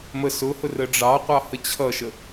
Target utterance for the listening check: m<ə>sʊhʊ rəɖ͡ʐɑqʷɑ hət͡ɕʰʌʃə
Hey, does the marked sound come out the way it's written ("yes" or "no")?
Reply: yes